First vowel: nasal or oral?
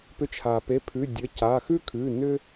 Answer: oral